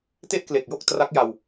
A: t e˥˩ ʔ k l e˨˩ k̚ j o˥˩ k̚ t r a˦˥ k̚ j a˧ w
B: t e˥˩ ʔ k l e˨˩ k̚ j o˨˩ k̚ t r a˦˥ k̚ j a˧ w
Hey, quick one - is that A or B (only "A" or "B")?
A